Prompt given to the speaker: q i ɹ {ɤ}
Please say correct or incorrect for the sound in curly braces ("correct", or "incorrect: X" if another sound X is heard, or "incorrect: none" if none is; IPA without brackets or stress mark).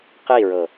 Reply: correct